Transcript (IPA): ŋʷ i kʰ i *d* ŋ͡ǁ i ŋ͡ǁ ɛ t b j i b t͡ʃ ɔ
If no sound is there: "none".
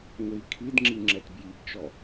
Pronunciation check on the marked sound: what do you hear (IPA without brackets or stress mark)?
d